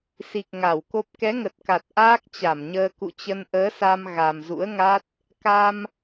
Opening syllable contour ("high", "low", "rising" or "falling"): low